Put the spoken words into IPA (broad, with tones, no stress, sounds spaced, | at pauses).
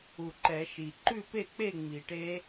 u˨˩ ǃ ɛ˨˩˦ ʃ i˨˩ ǃ ʉ˥˨ p e˥˨ k͡p e˥˨ ŋ͡m i˨˩˦ ʈ e˦˥